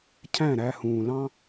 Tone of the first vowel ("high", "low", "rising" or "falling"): falling